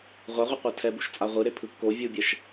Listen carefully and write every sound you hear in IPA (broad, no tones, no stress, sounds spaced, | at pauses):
ʁʷ a ʁʷ ɛ qʷ a tʰ ɛ b u ʃ t͡sʼ a ʁʷ ɯ ɾ e pʰ ɯ kː o vʲ u bʲ ɛ ʃ